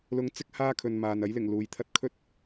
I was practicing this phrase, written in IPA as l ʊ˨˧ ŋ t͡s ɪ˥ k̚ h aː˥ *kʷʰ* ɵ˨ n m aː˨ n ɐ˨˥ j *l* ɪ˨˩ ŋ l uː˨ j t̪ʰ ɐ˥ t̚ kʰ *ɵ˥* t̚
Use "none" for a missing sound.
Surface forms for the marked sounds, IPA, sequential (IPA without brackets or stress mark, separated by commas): kʰ, l, ɵ˥